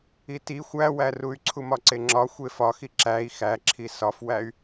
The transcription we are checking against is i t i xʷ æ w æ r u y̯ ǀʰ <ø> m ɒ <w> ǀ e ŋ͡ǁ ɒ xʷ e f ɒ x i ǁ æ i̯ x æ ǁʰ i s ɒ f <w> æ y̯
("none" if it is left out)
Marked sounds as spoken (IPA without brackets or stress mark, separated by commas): u, none, w